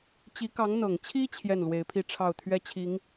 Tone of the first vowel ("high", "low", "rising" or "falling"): rising